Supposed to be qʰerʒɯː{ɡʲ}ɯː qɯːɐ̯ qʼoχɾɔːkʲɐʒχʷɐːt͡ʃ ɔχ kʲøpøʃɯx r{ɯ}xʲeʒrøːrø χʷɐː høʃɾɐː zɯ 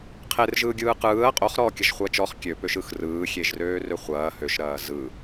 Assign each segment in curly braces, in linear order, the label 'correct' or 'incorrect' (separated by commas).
correct, incorrect